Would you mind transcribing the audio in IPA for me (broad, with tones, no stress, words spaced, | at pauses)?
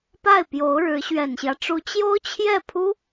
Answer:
pa˥˩ɪ̯pjo˧˥ʊ̯ɻɻ̩˧˥ ɕɥɛ˨˩nɕjä˦ʈ͡ʂu˧˥ t͡ɕjo˥ʊ̯t͡ɕʰjɛ˥˩pʰu˥